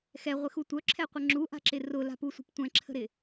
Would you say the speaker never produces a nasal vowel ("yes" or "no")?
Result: no